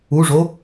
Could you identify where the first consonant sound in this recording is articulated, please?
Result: retroflex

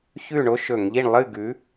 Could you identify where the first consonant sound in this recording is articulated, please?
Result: palatal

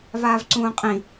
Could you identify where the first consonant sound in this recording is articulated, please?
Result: labial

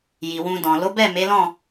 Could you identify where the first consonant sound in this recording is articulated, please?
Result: palatal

